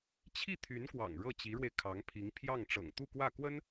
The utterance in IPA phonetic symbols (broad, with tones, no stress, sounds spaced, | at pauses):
t͡ɕʰ i˥˩ t̪ʰ y˧˥ n k w ɑ̰˨˩ ŋ ɻ ɤ˥˩ t͡ɕ i˧˥ ɻ w e˧ ɪ̯ kʰ ɑ˧˥ ŋ pʰ i˧˥ ŋ pʰ j ɑ˥˩ ŋ ʈ͡ʂ ɤ̰˨˩ ŋ t̪ u˥˧ k w ä˥˩ k w ə˥ n